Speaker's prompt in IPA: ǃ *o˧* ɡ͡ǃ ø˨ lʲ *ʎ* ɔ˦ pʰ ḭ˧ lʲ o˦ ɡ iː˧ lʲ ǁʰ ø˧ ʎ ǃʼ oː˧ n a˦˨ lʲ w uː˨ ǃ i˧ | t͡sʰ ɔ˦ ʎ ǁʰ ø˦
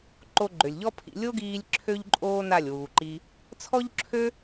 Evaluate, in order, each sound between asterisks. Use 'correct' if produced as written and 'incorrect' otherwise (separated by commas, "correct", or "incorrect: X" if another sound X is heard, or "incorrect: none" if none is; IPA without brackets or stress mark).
correct, correct